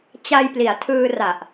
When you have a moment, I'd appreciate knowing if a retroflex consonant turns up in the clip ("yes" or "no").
no